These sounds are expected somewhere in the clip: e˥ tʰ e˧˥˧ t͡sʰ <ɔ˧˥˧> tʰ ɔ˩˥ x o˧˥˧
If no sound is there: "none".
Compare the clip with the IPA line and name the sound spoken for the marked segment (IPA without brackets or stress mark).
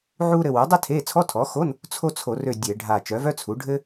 ɔ˧˥˧